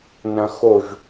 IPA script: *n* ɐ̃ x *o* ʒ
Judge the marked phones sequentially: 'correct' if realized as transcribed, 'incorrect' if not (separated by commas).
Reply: correct, correct